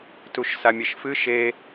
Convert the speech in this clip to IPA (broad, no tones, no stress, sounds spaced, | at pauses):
t u ʃ s a mʲ e ʃ f ɨ ʃ e